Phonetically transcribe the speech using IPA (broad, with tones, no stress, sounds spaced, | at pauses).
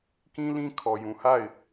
k ĩ˦ l ĩ˦ kʰ ɔ˨ j ũ˨ h a˦˨ ɪ̯